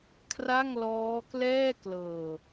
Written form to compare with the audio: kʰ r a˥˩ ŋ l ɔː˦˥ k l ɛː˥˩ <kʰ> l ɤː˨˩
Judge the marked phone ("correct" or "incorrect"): incorrect